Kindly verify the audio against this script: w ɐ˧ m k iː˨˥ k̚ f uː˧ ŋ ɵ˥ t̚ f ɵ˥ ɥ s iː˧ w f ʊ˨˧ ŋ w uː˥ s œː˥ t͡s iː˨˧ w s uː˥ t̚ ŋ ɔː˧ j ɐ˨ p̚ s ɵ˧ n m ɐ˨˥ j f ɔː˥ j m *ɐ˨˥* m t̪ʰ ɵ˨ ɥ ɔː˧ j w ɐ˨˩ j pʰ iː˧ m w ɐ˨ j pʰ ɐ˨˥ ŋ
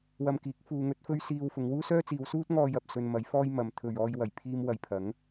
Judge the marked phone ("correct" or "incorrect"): incorrect